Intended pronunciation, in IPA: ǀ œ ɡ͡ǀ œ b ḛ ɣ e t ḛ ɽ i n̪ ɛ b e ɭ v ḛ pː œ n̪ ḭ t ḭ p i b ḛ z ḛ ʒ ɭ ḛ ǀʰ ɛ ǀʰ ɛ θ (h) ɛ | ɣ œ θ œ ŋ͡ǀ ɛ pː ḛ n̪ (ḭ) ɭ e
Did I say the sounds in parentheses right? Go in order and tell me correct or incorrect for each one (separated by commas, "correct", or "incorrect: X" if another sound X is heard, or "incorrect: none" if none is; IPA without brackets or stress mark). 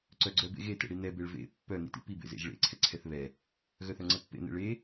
incorrect: β, incorrect: ḛ